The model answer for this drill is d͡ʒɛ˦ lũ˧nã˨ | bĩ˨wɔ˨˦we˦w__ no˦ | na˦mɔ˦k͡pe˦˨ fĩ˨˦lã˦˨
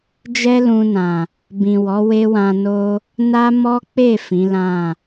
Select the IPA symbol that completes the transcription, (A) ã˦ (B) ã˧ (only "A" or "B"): B